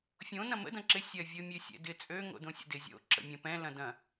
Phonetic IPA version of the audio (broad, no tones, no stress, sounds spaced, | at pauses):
fʲ õ n ɐ̃ m ə̰ d ɐ̃ ǁ ɪ sʲ ɐ vʲ o mʲ ø sʲ ɛ̰ d ɪ t͡sʼ ø ŋ o̰ d õ sʲ ə̰ d ɪ zʲ o̰ ǁ ə̰ mʲ ɐ̃ p ɛ̃ l ɐ̃ d ɐ̃